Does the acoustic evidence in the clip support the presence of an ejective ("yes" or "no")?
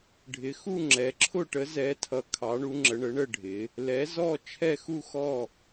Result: no